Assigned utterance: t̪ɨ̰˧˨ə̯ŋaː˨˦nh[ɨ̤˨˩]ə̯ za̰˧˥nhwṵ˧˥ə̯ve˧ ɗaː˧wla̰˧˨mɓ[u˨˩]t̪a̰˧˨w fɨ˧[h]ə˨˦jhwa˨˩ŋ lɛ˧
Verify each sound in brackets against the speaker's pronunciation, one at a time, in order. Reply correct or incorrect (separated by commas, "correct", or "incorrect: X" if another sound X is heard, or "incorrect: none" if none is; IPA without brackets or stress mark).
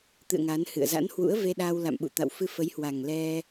incorrect: ɨ̰˧˨, incorrect: ṵ˧˨, incorrect: f